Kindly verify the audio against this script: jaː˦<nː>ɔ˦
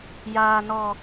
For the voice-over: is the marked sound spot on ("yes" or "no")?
no